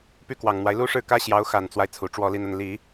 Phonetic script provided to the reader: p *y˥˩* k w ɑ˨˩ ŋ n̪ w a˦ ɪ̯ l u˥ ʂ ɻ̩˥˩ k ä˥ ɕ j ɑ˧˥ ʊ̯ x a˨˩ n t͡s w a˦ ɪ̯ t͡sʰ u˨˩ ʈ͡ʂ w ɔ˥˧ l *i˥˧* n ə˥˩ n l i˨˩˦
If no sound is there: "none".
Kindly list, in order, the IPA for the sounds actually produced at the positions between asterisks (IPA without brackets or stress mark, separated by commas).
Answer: y˥˩, i˥˧